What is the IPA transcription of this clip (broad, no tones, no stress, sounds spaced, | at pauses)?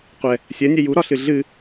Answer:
qʷ ɛ | sʲ ɜ nʲ ɛ j u ɾ ɒ ɬ ɨ ɮ ɨ